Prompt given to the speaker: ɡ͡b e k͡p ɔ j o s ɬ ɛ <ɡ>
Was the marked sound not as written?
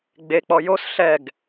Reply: no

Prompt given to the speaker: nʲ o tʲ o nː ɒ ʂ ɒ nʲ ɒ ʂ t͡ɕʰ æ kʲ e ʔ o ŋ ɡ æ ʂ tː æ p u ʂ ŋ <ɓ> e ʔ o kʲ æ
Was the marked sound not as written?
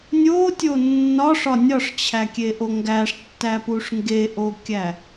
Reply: yes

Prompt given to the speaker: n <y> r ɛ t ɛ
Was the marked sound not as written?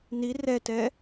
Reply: yes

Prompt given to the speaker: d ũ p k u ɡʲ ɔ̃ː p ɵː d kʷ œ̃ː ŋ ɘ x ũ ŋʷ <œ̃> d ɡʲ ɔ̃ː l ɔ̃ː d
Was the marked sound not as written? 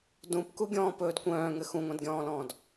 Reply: yes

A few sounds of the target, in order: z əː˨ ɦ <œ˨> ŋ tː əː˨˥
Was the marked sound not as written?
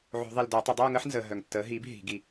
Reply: no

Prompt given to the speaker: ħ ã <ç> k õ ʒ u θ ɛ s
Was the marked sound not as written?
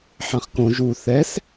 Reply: yes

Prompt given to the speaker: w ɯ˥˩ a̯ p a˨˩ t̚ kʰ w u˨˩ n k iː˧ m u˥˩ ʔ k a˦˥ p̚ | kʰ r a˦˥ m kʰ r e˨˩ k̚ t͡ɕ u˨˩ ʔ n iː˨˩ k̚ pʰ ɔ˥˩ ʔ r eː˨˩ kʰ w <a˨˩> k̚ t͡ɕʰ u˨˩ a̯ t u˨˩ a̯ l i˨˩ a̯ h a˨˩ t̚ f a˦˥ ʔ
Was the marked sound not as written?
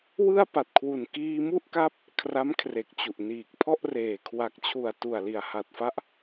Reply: no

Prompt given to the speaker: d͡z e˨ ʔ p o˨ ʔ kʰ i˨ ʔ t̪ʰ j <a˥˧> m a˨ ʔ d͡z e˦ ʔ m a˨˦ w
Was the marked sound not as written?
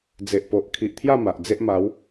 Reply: no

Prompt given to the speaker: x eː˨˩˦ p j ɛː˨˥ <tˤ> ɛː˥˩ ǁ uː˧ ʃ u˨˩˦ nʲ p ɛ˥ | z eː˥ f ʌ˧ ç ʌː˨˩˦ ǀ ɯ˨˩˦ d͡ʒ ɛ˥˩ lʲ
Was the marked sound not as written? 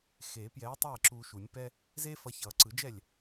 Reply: no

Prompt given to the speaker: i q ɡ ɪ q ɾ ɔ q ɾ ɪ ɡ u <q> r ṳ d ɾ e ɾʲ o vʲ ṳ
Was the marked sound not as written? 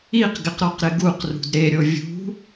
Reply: no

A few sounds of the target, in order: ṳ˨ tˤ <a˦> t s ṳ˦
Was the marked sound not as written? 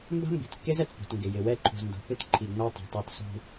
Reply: no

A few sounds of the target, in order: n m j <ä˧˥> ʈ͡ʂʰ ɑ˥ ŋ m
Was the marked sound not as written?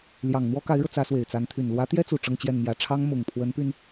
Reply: yes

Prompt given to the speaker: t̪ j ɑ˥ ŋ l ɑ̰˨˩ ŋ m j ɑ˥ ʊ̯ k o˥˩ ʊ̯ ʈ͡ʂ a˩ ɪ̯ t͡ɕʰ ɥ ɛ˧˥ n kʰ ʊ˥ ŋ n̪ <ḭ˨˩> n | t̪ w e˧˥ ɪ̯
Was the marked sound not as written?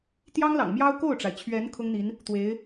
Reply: yes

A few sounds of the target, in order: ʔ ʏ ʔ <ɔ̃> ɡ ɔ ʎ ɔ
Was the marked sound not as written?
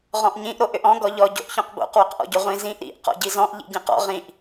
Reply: no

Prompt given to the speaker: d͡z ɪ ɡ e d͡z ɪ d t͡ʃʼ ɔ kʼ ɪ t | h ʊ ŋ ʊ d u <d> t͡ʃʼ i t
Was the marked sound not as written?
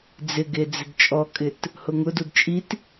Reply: no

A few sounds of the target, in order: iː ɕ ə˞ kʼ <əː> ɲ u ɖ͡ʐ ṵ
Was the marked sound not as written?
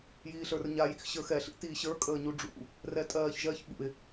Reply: no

